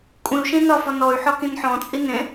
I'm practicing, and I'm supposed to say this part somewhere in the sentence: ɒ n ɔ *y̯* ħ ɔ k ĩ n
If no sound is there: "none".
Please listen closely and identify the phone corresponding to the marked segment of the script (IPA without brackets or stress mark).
y̯